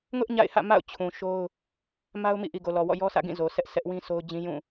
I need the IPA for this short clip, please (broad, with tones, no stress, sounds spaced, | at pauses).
ŋ ʊ˦ ʔ ɲ a̰˦˨ ɪ̯ h ä̰˦˨ m a̰˦˨ ʊ̯ t͡ɕʰ ũ˨ ʃ o˦ ʊ̯ | m a˦ ʊ̯ m ḭ˦˨ ʔ i˨ ɡ o˨ l ɔ˨ w ɔ̰˦˨ j ɔ˦ sʰ ä̰˦˨ ɡ ĩ˦˨ z o˨ s ɛ˦ ʔ s ɛ˦ ʔ w ĩ˦ sʰ o˦ ʊ̯ d͡ʑ ĩ˦ j ũ˦˨